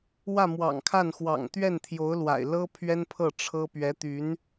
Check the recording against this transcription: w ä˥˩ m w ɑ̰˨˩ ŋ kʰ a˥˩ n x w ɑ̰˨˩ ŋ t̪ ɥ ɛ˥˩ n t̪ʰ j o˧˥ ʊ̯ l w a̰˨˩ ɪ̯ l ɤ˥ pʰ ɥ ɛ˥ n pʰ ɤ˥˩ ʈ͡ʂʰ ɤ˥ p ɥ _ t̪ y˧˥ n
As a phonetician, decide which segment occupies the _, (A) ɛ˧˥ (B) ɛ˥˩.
A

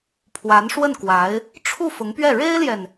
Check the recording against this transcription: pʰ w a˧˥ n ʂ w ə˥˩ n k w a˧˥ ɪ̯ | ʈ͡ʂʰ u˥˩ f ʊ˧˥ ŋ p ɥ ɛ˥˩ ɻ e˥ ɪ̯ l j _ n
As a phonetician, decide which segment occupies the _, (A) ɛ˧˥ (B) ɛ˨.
B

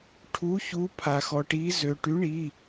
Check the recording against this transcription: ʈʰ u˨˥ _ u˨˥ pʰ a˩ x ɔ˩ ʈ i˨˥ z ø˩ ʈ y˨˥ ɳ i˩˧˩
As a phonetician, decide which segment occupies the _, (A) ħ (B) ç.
B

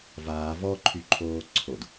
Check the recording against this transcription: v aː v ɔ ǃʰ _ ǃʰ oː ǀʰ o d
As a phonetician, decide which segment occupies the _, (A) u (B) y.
B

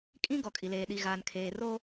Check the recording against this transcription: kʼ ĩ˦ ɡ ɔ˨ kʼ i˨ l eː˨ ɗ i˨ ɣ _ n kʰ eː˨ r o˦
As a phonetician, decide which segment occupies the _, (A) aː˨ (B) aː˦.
A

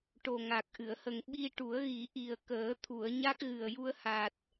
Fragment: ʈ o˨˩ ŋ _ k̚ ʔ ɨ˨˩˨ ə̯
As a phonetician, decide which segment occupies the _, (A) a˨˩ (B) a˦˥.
A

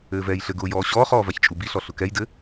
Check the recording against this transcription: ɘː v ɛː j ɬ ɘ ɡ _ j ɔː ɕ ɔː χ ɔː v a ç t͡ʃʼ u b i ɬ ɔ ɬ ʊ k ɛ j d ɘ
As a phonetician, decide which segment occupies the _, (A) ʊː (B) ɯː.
A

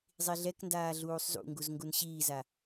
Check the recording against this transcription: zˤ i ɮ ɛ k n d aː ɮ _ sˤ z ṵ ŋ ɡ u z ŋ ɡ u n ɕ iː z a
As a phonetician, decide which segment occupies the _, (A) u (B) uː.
B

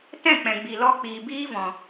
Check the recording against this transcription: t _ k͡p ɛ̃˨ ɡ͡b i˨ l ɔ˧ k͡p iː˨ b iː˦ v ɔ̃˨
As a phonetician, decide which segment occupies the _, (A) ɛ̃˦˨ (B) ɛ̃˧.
A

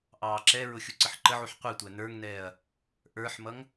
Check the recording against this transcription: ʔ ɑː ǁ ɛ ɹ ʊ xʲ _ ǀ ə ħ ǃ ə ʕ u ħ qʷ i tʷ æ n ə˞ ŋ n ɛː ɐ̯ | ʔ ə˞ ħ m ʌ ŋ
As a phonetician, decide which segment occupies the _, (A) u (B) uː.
A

